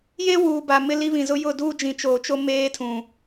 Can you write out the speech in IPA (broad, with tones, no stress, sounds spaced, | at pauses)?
j e˦ w uː˨ b a˨ m ɪ˦ l i˦ β ĩ˨ z ʊ˦ j ʊ˦˨ d uː˦ d͡ʒ ĩ˨ t͡ʃ oː˨ t͡ʃ o˦ m eː˦ tʰ ũ˨